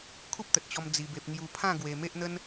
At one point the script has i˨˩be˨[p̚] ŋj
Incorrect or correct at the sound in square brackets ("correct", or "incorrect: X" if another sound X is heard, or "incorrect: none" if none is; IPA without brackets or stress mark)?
correct